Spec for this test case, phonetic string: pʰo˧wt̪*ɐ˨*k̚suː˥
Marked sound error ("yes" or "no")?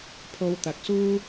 no